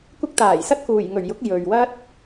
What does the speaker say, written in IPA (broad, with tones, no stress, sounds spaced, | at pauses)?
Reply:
kʷ ɪ˧ k̚ t̪ aː˨˩ j s ɐ˥ t̚ k uː˨˩ j ŋ ɵ˨˩ ɥ j ʊ˨˥ k̚ j ɵ˨ ɥ w ɐ˥ t̚